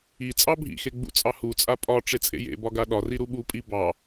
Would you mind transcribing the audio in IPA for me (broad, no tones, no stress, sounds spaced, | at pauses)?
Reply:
i t͡sʼ ɑ bʱ ḭ x e ɡ͡b ṵ t͡sʼ ɑ h u t͡sʼ a pʼ ɒ ʈ͡ʂ e t͡sʼ ḛ j ḛ b ɒ ɡ a ɗ ɒ r i ɾ u ɓ u pʼ i b ɑ